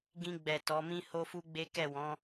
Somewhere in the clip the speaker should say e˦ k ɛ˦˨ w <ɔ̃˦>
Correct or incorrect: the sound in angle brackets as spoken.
incorrect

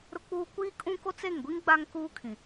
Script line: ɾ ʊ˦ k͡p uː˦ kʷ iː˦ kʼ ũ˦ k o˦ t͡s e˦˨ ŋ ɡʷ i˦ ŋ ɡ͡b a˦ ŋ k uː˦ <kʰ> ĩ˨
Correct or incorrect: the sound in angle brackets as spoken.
correct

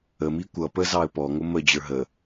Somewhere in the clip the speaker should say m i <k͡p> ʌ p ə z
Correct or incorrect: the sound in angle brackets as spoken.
incorrect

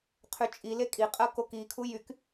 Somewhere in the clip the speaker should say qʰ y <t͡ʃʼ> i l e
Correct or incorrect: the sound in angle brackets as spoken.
correct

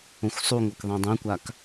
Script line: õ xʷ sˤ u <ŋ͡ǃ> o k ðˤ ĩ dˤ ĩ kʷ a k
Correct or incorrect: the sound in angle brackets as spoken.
incorrect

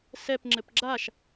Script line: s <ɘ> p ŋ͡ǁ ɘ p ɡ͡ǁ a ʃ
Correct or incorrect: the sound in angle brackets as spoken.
incorrect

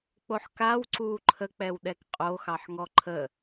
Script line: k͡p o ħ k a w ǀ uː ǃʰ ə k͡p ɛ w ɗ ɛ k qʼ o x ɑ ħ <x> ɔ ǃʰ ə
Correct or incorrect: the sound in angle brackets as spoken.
incorrect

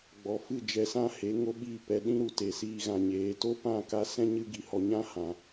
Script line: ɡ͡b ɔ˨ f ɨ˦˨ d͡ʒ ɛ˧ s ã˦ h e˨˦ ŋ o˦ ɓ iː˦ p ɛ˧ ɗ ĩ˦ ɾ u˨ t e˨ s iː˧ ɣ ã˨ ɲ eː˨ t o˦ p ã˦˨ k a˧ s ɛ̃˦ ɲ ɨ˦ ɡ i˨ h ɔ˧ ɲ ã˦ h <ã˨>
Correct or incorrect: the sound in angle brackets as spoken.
correct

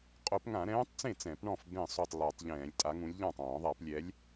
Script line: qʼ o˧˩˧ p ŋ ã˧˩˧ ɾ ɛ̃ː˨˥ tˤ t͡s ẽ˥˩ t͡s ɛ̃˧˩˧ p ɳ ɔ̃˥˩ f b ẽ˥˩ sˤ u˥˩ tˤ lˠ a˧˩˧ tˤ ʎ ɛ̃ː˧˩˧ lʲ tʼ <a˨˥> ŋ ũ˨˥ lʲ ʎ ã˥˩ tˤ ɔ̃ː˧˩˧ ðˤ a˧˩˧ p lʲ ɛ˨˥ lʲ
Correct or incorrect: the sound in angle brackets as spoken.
correct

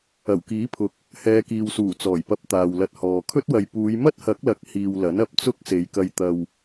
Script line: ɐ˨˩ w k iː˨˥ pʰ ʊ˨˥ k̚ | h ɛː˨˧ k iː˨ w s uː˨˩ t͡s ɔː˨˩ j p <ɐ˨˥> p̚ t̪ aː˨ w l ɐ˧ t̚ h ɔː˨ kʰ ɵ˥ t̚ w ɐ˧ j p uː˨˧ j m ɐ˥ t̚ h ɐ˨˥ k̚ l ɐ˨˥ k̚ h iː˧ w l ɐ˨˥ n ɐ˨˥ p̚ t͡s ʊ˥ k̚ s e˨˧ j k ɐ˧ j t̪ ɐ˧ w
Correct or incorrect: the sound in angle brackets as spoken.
incorrect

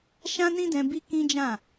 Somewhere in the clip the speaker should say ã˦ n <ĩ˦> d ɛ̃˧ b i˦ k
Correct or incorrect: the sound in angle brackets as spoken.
correct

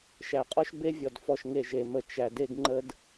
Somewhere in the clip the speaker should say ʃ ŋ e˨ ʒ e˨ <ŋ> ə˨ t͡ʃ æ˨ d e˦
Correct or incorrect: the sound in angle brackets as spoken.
incorrect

